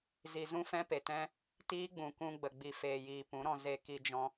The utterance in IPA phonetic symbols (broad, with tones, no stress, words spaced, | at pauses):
zi˨zũ˦ fɛ̃˦pe˨tɛ̃˦ | tiː˦ɡ͡bũ˨kũ˧ɡ͡bə˨ ɡ͡bi˨feː˨jiː˨ pũ˨˦ɾɔ̃˧ ze˧ ki˧d͡ʒɔ̃˧